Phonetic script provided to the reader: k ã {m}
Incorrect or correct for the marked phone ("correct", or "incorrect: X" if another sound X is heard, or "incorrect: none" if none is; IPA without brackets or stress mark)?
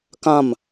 correct